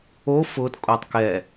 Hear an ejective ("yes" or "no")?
yes